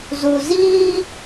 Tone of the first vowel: low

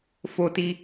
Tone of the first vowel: high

